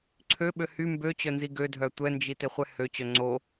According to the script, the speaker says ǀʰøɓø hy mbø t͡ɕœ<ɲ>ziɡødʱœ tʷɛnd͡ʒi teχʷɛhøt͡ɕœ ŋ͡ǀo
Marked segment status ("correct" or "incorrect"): incorrect